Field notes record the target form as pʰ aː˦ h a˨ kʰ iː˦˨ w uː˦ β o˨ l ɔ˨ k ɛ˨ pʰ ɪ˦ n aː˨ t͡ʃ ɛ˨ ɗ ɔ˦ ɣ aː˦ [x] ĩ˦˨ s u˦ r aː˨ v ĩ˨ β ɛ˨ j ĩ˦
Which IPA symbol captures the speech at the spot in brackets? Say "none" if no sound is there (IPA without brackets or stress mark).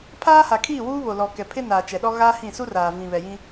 h